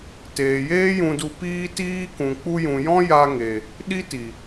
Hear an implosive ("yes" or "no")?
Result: yes